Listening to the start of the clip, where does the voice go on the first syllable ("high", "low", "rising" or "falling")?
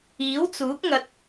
rising